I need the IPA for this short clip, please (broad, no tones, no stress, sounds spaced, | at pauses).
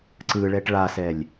ǀ ɯ ɭ ɛ ʈ ɭ a s ɛ lʲ